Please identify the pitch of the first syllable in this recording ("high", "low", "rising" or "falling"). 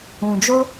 low